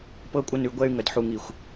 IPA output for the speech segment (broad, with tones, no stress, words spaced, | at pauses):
pɤ˧kʷʼə˧nʉ˨ ɡʷɛ˧y̯ ŋə˨dħu˨ŋi˨xʷ